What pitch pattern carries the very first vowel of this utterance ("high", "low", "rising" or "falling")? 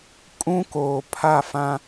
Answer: high